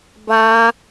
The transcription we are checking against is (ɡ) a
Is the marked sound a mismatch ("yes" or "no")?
yes